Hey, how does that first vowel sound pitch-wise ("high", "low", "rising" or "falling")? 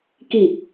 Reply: low